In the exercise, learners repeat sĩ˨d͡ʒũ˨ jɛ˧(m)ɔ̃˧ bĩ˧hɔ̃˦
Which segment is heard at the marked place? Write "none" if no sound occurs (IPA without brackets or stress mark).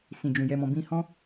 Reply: m